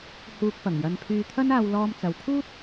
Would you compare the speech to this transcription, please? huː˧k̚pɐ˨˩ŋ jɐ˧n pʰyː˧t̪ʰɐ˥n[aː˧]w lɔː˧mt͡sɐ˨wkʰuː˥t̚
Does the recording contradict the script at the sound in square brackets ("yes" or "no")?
no